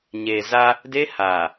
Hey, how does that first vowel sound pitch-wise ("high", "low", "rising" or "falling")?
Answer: low